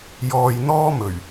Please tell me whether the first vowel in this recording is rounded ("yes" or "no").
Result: yes